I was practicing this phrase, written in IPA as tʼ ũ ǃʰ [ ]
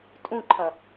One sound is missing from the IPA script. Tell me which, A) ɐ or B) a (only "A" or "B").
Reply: A